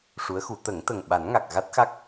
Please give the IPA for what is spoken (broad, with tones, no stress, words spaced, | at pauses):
ʂu˧˥ə̯xu˨˩˦ t̪ə˨˩˦ŋt̪ə˨˩ŋ ɓa˨˩˦nŋa˨˩k̚ ɣa˦˥t̚xa˦˥k̚